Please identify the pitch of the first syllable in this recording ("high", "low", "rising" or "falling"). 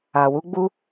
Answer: low